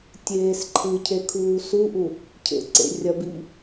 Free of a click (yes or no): no